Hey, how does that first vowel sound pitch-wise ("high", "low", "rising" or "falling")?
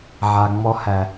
low